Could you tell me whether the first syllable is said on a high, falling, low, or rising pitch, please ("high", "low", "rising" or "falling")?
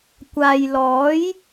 low